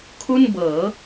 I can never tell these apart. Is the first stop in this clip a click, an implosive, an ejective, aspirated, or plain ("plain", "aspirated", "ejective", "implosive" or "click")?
aspirated